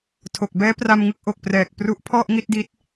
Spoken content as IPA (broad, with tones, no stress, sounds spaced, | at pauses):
tʰ o˨˩ k̚ b ɛː˦˥ p r a˧ m ŋ ɯ˦˥ k̚ ʔ o˨˩ k̚ p r ɛː˨˩ k̚ p r u˦˥ ʔ pʰ ɔ˥˩ ʔ ŋ i˥˩ t̚ d i˦˥ t̚